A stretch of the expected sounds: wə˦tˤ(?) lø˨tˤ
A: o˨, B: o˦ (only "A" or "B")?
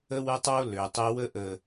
B